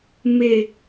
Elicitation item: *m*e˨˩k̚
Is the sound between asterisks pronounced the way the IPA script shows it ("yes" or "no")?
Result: yes